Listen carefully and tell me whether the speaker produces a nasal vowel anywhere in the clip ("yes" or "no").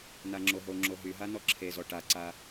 no